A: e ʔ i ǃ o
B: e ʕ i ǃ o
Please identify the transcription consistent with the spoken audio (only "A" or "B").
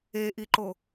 A